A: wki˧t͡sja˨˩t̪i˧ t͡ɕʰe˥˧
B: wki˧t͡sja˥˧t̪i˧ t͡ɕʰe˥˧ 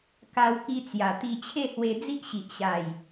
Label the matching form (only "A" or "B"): A